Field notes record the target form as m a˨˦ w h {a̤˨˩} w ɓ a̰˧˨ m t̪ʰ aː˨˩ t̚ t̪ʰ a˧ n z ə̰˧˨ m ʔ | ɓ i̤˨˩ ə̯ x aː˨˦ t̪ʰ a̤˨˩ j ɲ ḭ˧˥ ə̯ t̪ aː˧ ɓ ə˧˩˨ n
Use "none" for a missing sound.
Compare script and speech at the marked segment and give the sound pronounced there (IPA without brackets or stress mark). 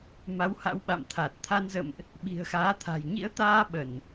a̰˧˥